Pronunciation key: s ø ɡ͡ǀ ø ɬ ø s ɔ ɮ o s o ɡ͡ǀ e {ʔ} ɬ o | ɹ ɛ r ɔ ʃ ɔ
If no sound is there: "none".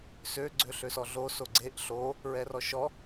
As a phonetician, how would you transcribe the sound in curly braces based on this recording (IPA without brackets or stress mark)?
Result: ʔ